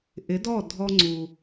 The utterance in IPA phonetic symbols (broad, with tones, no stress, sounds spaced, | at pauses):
ʔ ɪ˨˦ d ɔ˦˨ dʱ ɔ˨ ŋ͡ǀ u˨